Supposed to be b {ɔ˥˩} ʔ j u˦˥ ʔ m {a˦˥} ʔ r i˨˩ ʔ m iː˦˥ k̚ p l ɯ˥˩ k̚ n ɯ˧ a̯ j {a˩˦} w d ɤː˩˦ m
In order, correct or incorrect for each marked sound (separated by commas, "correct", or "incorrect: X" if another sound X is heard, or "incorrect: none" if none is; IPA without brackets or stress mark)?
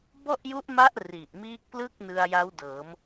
correct, correct, incorrect: a˦˥